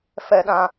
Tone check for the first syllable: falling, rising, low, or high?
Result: low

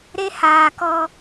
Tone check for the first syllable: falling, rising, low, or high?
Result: high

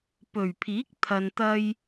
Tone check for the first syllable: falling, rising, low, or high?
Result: low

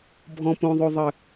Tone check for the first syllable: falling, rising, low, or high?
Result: low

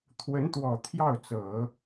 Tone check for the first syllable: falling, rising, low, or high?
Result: rising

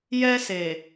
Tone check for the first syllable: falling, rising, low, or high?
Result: high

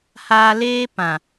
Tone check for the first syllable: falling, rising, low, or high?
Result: low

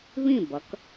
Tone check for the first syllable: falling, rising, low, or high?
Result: falling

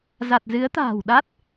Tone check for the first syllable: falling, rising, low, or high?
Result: low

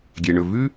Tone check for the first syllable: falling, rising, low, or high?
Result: low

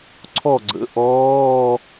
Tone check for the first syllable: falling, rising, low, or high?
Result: falling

